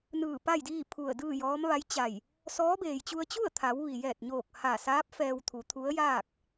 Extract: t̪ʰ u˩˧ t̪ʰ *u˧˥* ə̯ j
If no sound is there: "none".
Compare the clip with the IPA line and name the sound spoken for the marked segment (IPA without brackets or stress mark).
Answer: u˧˥